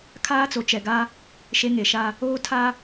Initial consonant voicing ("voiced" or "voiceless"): voiceless